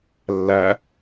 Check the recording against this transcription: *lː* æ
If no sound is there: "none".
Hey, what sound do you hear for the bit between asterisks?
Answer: lː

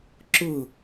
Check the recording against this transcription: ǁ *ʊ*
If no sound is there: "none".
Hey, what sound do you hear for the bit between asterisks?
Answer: ʊ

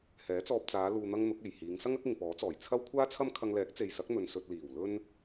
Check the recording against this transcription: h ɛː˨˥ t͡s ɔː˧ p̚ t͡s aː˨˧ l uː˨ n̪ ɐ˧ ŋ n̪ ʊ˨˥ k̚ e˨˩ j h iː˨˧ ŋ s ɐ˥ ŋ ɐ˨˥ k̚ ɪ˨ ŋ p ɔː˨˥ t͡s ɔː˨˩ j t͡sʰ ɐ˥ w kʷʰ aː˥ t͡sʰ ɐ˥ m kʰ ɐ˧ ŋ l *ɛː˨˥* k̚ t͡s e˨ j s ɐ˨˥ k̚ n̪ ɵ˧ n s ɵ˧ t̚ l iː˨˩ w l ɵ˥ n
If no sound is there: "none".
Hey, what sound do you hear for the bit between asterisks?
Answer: ɛː˨˥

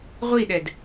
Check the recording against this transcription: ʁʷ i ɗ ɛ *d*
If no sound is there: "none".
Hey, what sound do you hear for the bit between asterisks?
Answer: d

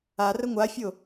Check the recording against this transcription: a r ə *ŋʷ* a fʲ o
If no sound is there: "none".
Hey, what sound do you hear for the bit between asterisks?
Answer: ŋʷ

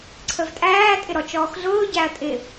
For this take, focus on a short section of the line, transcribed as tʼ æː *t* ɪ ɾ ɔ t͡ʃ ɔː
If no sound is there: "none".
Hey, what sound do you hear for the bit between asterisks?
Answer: tʼ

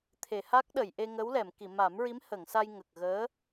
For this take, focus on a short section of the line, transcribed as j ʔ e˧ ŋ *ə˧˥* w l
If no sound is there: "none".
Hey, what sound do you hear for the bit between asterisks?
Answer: ə˧˥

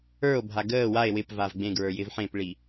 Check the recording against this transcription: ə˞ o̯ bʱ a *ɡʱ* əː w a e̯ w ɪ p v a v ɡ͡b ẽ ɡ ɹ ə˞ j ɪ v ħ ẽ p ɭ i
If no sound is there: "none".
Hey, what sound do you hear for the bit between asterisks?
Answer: ɡ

